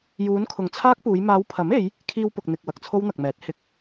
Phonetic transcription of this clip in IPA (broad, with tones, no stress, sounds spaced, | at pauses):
j uː˨˧ n kʰ ʊ˨ ŋ t͡sʰ aː˥ k̚ p uː˨˧ j m aː˨˧ w pʰ ɐ˨˥ m e˨˧ j | kʰ iː˧ w p ʊ˨ k̚ n̪ ɪ˨ k̚ w ɐ˨ k̚ t͡sʰ o˥ w n̪ ɐ˨ k̚ m ɛː˨˥ t̚ h ɪ˧ k̚